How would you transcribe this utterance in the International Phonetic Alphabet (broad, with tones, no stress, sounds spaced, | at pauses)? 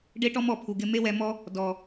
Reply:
ɖ e˦ ʈ ɔ˦ m ɔ˨ pʰ u˨ ɡ ɪ˧ m e˦ w ɛ˧ m ɔ˦ | d ɔ˨